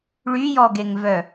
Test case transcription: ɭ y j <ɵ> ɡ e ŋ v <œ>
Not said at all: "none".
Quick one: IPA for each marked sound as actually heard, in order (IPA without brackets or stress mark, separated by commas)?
ɔ, œ